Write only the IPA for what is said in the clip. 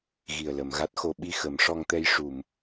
ɣ i˨˩ ə̯ l ə˨˩˨ m ɣ a˦˥ t̚ x o˧ ɓ i˧ x ə˨˩˦ m ʂ ɔ˧ ŋ t̪ ɛ˧ j ʂ u˨˩˨ m

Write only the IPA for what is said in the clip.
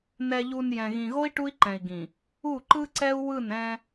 n ɛ˨ ʎ u˨ n j ɛ̃˨ ɣ ĩ˨ ɣ o˦ i̯ ʈ u˦ i̯ ǃ ɛ̃˨ i̯ ɡ ĩ˨ | u˦˨ ǃ ɯ˦ ǀ ɛ˦ u̯ w ɯ˦˨ n ɛ̃˦

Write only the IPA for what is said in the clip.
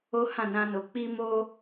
o˦ h ã˦˨ n ã˧ n o˨ k͡p i˧ m o˧

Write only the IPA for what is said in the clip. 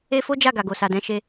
e˦ f o˦ d͡ʒ a˦˨ ɡ a˨ ɡ o˨ s a˨ d ɛ̃˧ ʃ e˧

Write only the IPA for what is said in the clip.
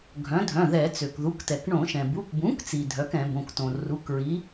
ɡʱ œ̃˩˥ dʱ œ̃˩˧˩ ð ɛ˧˩˧ t͡s ø˩ k ð u˩˧˩ k t ɛ˩ k ɳ õ˧˩˧ ʃ ɛ̃˩ b u˩˧˩ k b ũ˩˥ k t͡s i˩ dʱ œ˩˥ k ɛ̃˧˩˧ b õ˩˧˩ k t õ˩ r u˩˧˩ k ɹ i˩˥

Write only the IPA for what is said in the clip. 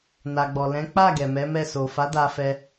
n a˨ ɡ͡b ɔ˨ l ɛ̃˨˦ k͡p a˦˨ ɡ ɛ˨ m ɛ˨˦ m ɛ˦˨ s o˨ f a˨˦ d a˦ f ɛ˦

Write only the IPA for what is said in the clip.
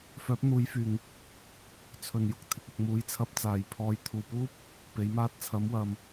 f œː˨˥ p̚ n̪ uː˨˧ j f yː˨˩ ŋ | t͡sʰ ɵ˨˩ n j ʊ˨ k̚ t̪ʰ ɪ˨ k̚ ʊ˨ k̚ m uː˨˥ j t͡sʰ ɐ˧ p̚ t͡s aː˨˩ j pʰ ɔː˨ j t̪ʰ uː˨˩ p uː˥ p̚ | p e˨˥ j m aː˥ t̚ t͡sʰ ɐ˨˥ m w ɐ˨ m

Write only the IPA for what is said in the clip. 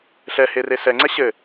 ɬ ɛ h e r e s ɛ ŋ͡ǀ ɛ ɕ ɘ

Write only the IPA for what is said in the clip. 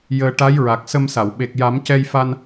j əː˧ ʈ a˧˥ j ɹ a˨˩ k̚ s ə˧ m s a˨˩˨ w ɓ e˨˩ k̚ j a˨˩˦ m c ɛ˧ j f a˧ n

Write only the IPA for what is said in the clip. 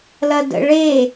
l ɐ d ə̰ ɭ e

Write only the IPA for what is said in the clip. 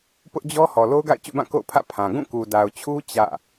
p ʊ˦ ʔ d͡ʑ ɔ˦ h ɔ˨ l o˦ ʊ̯ ɡ a̰˦˨ ɪ̯ t͡ɕ ṵ˦˨ b ã˦˨ k o̰˦˨ ʊ̯ pʰ ä̰˦˨ pʰ ã˨ ɡ ũ˦˨ k u˨ d a˨ ʊ̯ t͡ɕʰ u˦ t͡ɕ ä̰˦˨

